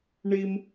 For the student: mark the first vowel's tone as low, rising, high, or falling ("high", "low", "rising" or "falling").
high